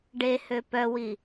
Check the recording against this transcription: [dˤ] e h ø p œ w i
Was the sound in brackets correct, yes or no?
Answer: no